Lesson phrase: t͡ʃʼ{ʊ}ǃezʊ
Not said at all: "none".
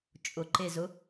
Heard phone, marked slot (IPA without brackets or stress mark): ʊ